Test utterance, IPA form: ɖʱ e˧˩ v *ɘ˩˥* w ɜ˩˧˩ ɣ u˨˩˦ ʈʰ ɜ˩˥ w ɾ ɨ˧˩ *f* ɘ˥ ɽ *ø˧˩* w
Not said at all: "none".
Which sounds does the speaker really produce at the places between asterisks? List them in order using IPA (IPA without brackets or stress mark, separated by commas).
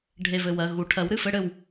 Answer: ɘ˧˩, f, ɘ˧˩